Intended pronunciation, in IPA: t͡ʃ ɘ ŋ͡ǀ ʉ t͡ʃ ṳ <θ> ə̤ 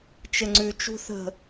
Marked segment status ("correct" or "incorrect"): correct